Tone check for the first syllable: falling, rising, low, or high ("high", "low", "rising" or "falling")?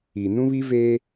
low